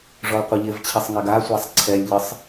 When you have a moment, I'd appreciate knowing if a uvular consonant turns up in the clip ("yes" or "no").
yes